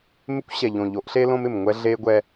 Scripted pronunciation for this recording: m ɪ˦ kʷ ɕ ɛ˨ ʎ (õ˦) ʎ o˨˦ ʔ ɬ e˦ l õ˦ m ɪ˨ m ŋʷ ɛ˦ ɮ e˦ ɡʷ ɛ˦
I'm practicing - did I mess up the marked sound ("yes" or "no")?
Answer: yes